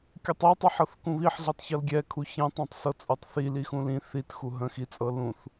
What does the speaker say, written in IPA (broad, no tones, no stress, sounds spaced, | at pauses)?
kʲ u tˤ i tˤ ɛ ħ ɤ θ k ũ β i ħ ɮ i tˤ ç ɤ l ɡʲ ɛ kʰ u ç ɛ̃ tˤ ɛ̃ tˤ s ɤ t͡sʼ u tˤ θ i l i x ũ l ĩ θ i t x u ɦ ə̃ x i t͡sʼ ɤ l ũ θ